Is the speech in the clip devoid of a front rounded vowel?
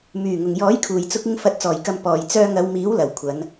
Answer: no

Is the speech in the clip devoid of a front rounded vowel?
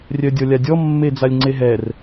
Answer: no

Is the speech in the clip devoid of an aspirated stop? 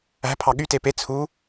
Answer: no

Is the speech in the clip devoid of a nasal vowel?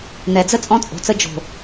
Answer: no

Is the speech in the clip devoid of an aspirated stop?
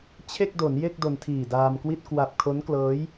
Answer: no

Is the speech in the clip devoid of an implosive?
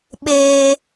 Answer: no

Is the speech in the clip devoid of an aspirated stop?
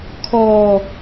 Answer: no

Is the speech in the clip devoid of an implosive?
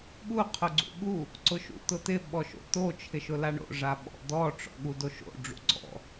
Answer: no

